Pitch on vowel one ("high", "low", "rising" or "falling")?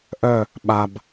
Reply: falling